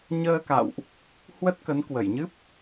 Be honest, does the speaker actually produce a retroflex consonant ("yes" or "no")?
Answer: no